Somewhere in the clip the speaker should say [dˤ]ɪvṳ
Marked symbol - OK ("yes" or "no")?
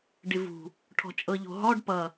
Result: no